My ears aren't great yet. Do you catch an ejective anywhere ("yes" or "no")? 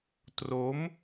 no